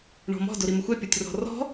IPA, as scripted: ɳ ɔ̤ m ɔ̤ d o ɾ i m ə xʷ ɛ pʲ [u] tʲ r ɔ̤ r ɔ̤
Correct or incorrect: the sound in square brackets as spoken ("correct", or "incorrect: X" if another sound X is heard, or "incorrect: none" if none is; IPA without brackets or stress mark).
incorrect: o